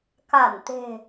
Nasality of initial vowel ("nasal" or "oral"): oral